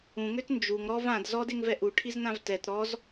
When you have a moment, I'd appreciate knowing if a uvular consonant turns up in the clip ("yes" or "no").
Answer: no